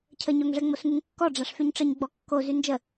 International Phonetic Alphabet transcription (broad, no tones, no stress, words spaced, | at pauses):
cʰəɲoŋʐɛ ŋ͡mosŋyŋkːɔ ɖ͡ʐaʂfyɲʈ͡ʂəɲɡ͡bɔ kːo zynd͡ʒə